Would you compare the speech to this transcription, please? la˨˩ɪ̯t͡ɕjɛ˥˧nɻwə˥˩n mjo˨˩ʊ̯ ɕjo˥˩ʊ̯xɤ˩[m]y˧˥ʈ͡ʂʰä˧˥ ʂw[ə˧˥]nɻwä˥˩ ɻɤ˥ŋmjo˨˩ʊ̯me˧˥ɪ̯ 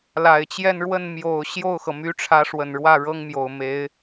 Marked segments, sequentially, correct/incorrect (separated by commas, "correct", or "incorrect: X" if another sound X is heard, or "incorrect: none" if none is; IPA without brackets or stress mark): correct, incorrect: ə˨˩